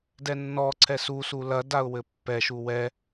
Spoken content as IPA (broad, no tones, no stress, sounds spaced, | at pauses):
d ɛ nː ɔ ǀʰ ɛ s u s u l ɐ d a ʊ̯ w ɘ pː ɛ ʃ u w ɛ